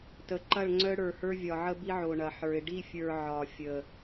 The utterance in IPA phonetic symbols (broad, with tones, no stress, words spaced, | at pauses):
tə˨ ǃɐ˦˨ɭŋ͡ǀœ˦ɽə˞˨hə˞˦ vʲɒ˨ʕə˦bi˦ ʕo˨ɳɐ˨ħə˞˨ɪ̯ ɖi˦˨fʲə˞˨ ʕɒ˨fʲə˨